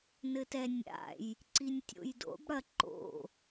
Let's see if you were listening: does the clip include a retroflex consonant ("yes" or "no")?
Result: yes